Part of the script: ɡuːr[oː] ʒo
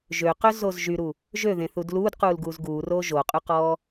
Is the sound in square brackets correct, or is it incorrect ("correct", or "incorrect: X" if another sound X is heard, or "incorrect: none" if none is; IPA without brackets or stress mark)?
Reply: correct